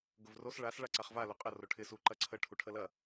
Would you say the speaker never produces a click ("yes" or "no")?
no